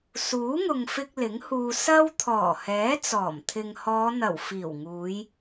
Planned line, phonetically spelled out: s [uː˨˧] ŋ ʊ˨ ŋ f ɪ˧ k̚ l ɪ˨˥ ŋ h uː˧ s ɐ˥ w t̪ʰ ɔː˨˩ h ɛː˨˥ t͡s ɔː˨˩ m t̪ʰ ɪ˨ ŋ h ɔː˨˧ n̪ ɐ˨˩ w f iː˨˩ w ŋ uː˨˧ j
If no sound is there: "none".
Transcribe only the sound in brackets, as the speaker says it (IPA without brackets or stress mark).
uː˨˥